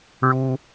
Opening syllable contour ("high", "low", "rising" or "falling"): high